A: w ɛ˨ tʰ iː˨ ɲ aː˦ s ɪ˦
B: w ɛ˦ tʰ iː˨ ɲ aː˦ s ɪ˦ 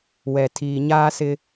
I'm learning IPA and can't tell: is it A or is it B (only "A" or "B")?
A